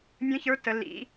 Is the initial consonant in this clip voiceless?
no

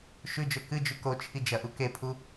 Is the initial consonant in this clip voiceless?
yes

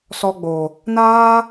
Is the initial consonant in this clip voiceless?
yes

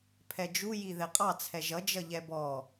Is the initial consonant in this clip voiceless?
yes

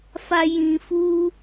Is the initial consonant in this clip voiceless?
yes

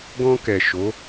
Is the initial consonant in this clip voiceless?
no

